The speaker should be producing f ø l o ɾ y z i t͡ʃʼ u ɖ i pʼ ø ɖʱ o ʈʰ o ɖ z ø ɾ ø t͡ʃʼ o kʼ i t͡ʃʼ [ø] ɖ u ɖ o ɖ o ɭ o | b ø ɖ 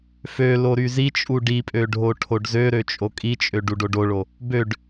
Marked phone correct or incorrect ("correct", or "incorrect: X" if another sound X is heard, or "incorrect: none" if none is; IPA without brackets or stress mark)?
correct